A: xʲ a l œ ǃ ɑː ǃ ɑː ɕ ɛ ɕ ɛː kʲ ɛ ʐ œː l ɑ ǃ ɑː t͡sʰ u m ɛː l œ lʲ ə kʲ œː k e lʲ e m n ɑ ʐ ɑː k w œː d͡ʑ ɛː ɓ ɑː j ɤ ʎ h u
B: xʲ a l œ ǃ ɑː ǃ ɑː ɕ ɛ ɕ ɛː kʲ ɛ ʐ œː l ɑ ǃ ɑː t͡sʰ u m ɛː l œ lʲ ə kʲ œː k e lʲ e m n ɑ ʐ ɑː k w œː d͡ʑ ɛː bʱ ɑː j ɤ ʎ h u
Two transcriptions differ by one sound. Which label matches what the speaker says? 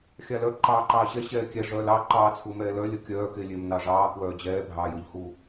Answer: B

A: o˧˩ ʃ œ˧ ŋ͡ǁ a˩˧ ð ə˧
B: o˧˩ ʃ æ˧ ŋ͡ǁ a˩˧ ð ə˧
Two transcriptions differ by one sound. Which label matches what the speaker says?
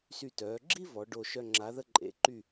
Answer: A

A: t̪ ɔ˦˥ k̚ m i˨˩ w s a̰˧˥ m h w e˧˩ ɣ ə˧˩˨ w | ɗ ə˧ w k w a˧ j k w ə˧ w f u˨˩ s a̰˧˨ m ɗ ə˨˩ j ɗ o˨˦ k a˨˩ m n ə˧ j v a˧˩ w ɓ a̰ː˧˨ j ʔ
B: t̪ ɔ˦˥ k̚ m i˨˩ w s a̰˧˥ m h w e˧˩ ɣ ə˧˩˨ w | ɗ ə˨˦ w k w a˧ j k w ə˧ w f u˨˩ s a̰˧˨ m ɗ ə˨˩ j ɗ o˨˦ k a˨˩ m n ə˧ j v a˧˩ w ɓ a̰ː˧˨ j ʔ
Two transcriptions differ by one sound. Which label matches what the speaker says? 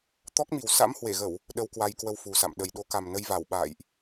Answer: A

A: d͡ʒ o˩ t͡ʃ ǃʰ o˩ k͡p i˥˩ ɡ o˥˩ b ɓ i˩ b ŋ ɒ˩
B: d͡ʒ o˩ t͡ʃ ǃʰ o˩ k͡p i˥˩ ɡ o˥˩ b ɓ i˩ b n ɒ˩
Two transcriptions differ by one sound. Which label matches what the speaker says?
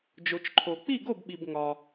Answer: A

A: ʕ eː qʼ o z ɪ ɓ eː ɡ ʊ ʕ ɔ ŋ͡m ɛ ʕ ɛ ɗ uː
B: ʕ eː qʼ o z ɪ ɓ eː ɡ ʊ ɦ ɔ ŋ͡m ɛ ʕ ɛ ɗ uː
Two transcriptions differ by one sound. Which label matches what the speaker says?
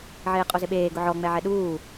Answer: A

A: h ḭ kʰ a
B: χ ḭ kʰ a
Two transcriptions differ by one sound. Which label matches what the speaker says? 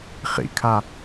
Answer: B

